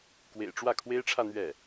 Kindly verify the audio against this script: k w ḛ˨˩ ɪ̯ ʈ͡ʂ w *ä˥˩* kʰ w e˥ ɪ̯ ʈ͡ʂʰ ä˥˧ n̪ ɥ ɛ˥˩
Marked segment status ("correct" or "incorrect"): correct